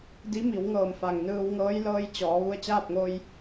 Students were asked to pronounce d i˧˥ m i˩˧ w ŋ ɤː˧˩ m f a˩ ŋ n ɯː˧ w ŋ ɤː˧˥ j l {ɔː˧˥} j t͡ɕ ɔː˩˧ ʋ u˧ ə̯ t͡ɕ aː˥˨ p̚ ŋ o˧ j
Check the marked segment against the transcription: incorrect: ɤː˧˥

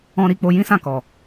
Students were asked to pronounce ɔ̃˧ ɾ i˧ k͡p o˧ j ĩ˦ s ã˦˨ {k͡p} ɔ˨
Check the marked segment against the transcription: incorrect: k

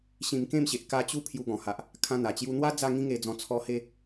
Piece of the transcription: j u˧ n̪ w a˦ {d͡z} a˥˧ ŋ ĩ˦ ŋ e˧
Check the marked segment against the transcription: correct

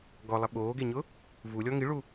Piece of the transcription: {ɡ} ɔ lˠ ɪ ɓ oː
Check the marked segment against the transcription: correct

